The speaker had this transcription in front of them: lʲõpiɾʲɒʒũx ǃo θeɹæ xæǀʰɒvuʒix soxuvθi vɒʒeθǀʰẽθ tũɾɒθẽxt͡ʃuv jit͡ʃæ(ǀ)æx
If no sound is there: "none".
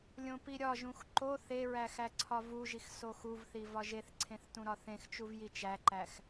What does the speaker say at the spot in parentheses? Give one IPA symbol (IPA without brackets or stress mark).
ǃ